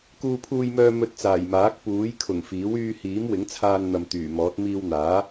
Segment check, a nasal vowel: absent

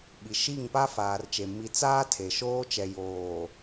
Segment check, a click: absent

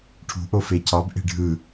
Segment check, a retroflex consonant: present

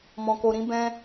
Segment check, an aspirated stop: absent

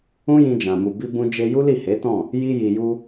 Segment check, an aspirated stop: absent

